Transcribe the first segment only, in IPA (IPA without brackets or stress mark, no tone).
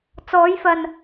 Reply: t͡s